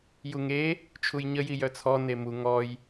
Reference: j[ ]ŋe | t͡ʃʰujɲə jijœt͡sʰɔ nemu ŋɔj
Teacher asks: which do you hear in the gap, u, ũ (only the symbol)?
u